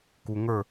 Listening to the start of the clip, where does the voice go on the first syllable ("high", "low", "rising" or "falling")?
low